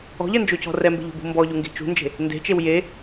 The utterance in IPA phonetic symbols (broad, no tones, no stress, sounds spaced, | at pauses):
ɔ̤ ʎ ɛ n d͡ʒ o c ɔ̤ r ɛ m b e̤ ʎ o̤ b ṳ m b ɔ ʎ u ŋ ɡ e̤ t͡ʃ ṳ n d͡ʒ e̤ | n d e̤ t͡ʃ e w j e